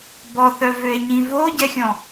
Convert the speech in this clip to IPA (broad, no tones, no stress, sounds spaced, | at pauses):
b ɔ θ œ v ø e̯ ɲ ĩ v o ɟ ɛ xʲ ɔ̃